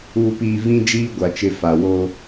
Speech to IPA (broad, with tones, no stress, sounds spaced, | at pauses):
uː˨ p iː˨ v ĩ˦ d͡ʒ iː˦ ɡʷ a˨ t͡ʃ ɪ˨ f a˨ w oː˦